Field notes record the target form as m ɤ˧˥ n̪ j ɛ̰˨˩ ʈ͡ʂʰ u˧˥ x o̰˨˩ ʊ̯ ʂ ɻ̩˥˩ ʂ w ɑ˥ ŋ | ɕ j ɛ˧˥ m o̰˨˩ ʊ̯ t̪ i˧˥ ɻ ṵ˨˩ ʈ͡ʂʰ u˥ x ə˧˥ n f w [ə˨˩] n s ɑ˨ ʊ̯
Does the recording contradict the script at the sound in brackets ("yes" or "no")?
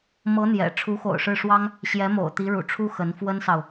yes